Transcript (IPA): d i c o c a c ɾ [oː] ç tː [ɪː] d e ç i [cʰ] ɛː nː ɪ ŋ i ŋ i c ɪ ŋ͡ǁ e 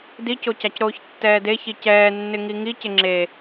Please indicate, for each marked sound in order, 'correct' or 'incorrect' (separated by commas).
correct, incorrect, incorrect